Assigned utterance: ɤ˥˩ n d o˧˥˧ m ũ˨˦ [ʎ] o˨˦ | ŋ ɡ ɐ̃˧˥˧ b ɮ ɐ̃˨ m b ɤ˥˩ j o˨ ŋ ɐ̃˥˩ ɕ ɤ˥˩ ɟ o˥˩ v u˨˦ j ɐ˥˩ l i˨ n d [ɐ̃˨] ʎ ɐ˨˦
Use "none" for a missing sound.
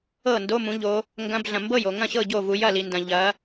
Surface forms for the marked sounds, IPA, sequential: ʎ, ɐ̃˨

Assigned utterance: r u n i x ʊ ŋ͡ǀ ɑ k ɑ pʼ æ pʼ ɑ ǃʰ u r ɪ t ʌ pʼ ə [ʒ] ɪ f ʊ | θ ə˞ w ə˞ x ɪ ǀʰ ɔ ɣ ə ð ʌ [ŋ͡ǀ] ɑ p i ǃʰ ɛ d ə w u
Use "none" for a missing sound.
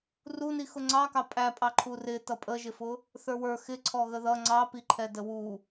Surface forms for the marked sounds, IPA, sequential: ʒ, ŋ͡ǀ

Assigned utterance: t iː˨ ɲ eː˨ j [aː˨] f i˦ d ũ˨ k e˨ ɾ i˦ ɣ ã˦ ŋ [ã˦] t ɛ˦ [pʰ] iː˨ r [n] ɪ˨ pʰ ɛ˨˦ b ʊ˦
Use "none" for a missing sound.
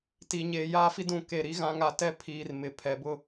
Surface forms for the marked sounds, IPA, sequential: aː˦, a˦, pʰ, m

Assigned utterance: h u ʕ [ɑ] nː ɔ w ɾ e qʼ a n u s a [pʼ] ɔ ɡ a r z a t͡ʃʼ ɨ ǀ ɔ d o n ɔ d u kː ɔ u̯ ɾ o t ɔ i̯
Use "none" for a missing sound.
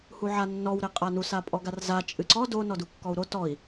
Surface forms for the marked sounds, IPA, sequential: a, pʼ

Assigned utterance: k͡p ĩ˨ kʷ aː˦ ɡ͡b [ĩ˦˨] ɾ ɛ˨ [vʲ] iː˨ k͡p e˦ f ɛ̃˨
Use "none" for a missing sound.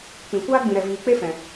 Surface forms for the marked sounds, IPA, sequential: ĩ˨, v

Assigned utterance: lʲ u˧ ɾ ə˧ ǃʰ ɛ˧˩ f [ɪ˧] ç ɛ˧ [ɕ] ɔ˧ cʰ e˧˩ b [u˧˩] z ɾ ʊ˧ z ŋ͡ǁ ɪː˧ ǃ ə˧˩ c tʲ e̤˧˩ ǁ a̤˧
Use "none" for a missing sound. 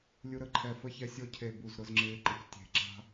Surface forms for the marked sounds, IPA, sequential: ə˧, sʲ, u˧˩

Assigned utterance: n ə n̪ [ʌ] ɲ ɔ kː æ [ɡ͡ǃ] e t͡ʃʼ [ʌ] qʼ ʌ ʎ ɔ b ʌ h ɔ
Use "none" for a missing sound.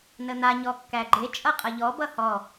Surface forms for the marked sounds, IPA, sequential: a, ɡ͡ǃ, ʌ

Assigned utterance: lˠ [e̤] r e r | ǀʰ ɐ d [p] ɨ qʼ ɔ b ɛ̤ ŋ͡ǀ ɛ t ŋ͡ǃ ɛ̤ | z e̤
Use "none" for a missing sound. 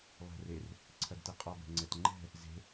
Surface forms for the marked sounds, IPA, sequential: ɛ̤, t

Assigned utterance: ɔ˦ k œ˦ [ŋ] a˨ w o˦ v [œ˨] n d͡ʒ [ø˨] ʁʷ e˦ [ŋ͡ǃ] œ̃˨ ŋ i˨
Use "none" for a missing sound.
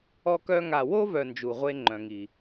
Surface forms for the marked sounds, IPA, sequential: ŋ, œ˨, u˨, ŋ͡ǃ

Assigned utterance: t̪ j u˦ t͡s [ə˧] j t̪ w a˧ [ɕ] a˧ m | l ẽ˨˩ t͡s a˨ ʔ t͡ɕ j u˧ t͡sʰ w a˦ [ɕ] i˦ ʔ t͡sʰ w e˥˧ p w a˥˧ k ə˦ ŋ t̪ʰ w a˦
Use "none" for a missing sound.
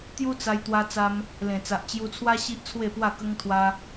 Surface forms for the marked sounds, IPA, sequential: a˧, t͡s, ɕ

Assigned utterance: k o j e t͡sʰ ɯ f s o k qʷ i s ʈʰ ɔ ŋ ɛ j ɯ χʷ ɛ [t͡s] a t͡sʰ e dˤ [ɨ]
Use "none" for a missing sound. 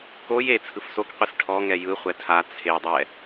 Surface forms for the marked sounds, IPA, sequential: tʰ, ɛ

